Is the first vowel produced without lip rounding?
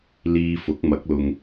yes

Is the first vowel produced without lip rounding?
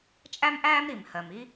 yes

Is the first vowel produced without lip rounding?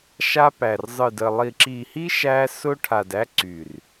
yes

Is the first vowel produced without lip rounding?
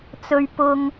no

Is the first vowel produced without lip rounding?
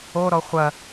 no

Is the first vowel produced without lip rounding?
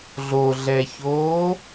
no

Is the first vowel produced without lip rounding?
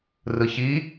yes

